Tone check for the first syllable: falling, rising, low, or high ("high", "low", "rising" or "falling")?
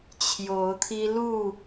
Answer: rising